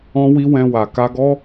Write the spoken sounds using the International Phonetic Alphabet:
ɔ̃˦wi˦ wɛ̃˧wa˨ ka˧ɡɔ˦

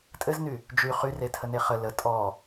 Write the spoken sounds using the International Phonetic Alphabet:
tʼɘzny | d͡ʒy χyretʰəne χə lə tʼɔ

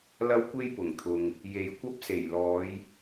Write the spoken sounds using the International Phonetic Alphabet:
lɐ˥wkʷe˥j pʊ˨˩ŋt̪ʰʊ˨ŋ | je˨jkʷɐ˥p̚se˨˩jlɔː˨˧j

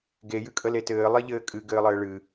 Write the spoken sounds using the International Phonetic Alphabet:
ɡejɨ kʼəletɘː lˠeʎɘːkʼɨ ɡɘːlˠɘːɭɨ

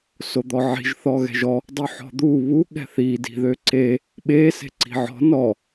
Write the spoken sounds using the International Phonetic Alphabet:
sod̪ɔʕi̤ʒ θɔɣɛ̤ʒɔ | dˤuħɔ̤d̪u βu ɠɛ̤θi di̤ðøǀe | ɓe se̤ǀi̤ʕɔ̤ nɔ

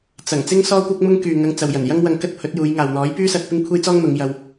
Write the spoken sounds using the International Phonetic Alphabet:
t͡sɐ˨˩ŋ t͡sɪ˥ŋsɔː˥ kʷɐ˥k̚ mʊ˥ŋ kyː˨ ŋɐ˧ŋ t͡sɐ˨wjɐ˨˩njɐ˥ŋwɐ˧ŋ kɐ˥t̚pʰɵ˨˥t̚juː˨˧jŋaː˨w n̪ɔː˨˥jpyː˥sɐ˧t̚ pɪ˥ŋkʷʰe˥jt͡sɔː˥ŋn̪ʊ˨˧ŋ jɐ˧w

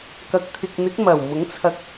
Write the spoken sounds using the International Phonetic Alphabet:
kɐ˨k̚t̪ʰɪ˨k̚n̪ɪ˨˥k̚ mɐ˨˩wmʊ˨˥ŋt͡sʰɐ˧k̚

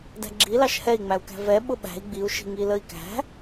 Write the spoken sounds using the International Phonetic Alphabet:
dæ̤ɡ͡ǁilɑʃ hɛi̯ŋ͡mæu̯kæ̤ vɛ ɓʊɓæ̤i̯ ɡ͡biu̯ʃi̤ ŋiləi̯kæ̤

